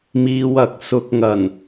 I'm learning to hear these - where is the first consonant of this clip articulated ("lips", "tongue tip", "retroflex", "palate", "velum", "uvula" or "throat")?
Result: lips